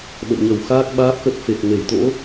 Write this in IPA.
ɓə̰ː˧˨ɲə˧˩w xaː˦˥k̚ɓaː˦˥p̚xə˦˥t̚fe˨˩k̚ ŋe˧˩jt̪o̰˧˥

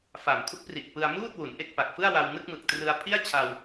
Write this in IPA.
fa˨˩mkʰu˥˩k̚pri˨˩ʔ pɯ˧a̯muː˥˩t̚wu˩˦n ʔe˥˩k̚pa˨˩k̚ fɯ˥˩a̯wa˧wnɯ˥˩k̚ mɯ˨˩k̚trɯ˧a̯ pʰi˥˩a̯t͡ɕʰa˧w

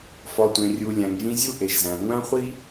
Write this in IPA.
fɒ˨tʷẽ˨rʲu˨ lʲæ̃˨ŋʒĩ˧ zʲu˦ʔe˨ʒzæ̃˨ ŋʷæ̃˦χʷi˦

